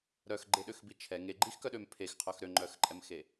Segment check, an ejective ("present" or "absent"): present